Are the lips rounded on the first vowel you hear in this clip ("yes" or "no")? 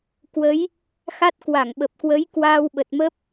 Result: no